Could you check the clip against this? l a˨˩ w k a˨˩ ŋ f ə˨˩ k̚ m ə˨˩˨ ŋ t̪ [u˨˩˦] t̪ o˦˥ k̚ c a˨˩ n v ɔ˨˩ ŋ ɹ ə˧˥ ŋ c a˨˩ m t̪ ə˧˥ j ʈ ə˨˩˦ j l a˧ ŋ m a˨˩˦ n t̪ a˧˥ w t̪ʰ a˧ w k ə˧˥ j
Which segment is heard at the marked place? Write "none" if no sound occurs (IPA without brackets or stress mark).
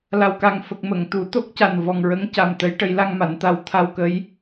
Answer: u˨˩˦